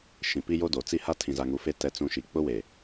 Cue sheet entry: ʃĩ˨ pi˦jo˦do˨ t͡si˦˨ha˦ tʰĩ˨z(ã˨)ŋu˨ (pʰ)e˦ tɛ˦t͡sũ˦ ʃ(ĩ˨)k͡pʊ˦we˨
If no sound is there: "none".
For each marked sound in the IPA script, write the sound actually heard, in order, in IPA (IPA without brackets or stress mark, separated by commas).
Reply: a˨, f, i˨